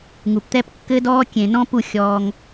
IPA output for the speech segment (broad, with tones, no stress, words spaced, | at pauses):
ŋu˨pt̪ɛ˦p kːɘ˦dɔː˦ kʲẽ˨nɔ̃˦pu˦˨ xʲɔː˧ŋ